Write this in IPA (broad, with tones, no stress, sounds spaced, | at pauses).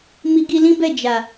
m i˧ ɡ i˧ l ĩ˦ b ɛ˦˨ d͡ʒ a˨